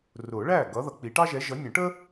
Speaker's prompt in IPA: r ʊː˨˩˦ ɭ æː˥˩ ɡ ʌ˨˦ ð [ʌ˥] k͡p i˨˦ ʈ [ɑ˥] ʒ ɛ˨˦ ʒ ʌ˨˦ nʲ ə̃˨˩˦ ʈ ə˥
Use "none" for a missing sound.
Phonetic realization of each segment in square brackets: ʌ˨˩˦, ɑ˥

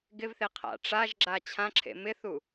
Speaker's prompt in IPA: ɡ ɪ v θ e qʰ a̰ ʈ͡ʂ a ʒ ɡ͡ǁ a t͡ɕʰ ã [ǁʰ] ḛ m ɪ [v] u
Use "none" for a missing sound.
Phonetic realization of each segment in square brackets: ǁʰ, θ

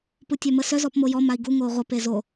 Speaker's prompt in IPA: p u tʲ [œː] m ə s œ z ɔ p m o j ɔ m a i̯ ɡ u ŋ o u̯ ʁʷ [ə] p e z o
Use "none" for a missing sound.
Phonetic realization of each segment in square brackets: œ, ə

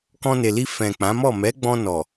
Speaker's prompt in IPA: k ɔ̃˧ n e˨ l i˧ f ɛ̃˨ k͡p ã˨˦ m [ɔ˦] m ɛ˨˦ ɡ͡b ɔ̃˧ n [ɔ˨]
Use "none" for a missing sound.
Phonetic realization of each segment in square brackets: ɔ˦˨, ɔ˨

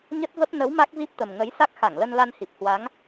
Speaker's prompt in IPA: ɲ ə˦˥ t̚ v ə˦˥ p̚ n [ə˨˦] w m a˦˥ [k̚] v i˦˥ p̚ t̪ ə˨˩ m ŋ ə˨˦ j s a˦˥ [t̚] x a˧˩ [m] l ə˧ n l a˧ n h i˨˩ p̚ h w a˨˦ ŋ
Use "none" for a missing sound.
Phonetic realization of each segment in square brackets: ə˨˦, k̚, k̚, ŋ

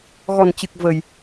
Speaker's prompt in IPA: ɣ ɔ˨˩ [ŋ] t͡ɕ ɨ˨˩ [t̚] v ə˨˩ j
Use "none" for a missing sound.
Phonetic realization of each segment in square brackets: n, k̚

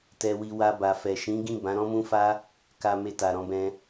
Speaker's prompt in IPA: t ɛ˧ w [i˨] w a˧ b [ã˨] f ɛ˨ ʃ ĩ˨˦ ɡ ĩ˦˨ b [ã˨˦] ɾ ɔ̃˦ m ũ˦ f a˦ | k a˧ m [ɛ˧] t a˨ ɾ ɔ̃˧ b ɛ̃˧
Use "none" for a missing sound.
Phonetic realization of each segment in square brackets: i˧, a˨, ã˨˦, e˧

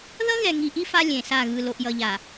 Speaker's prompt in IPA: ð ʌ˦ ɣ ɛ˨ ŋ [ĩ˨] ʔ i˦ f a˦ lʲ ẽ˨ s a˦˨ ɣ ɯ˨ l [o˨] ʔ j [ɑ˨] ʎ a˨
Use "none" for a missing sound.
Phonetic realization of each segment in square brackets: i˨, o˨, ʌ˨

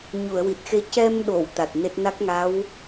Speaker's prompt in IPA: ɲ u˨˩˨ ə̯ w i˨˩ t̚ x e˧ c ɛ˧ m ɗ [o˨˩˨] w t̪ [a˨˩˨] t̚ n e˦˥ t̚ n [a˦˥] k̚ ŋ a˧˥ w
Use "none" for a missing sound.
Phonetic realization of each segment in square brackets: o˨˩˨, a˨˩, a˦˥

